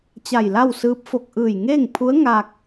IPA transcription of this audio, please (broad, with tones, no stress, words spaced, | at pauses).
t͡ɕa˧˩jla˥˨wsɯː˧˥p̚ fo˧˩k̚ʔɯː˧˩jŋeː˥˨ŋpʰu˧˥ə̯ ŋa˧k̚